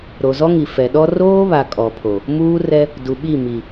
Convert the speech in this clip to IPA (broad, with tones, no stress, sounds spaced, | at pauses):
ɾ o˨ z ɔ˦ ŋ i˨ f ɛ˨ ɗ ɔ˦ r oː˦ β a˨ kʼ ɔ˨ pʰ o˨ | m uː˦ r ɛ˦ | d u˨ ɓ i˦˨ m i˨